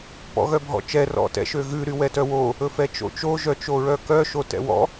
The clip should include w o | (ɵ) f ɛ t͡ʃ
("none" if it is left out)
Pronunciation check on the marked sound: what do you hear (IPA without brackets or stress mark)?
ɵ